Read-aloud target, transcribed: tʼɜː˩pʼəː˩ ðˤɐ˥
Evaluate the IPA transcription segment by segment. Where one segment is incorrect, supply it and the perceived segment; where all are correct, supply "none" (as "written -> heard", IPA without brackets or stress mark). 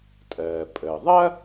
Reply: none